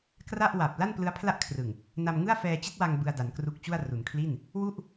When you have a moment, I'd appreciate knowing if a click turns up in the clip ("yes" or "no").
no